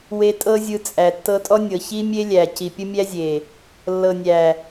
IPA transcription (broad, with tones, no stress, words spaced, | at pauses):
we˧tʼɤ˦ zʲɯ˧t͡sʼæ˨ tːɤ˧tʼɔ˦nʲɤ˨ çi˦mʲe˦lʲæ˨ ci˨pʲə˦mʲæ˦zʲe˨ | lːɤ˨nʲæ˨